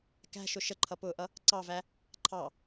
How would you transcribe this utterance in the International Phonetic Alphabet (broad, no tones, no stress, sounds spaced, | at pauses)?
k æ̤ ʃ ʊ ʃ ə ǃʰ ʌ p ʊː ʔ ʌ | ǀ ɑ v æ | ǃʰ ɑ